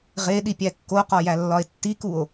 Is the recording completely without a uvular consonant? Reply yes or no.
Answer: no